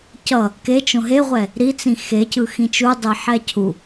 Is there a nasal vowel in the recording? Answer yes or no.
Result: yes